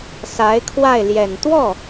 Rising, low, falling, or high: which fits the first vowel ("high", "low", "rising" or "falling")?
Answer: rising